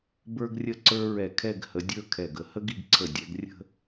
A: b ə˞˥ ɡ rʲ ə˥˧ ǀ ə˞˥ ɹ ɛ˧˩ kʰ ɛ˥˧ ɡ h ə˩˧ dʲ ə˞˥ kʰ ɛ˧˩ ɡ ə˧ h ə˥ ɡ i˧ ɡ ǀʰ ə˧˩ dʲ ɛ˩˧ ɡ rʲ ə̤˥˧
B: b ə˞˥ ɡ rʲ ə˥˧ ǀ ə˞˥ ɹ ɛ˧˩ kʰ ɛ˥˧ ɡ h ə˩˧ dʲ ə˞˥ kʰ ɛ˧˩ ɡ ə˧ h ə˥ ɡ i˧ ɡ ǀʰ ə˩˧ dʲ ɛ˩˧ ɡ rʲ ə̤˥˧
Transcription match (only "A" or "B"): A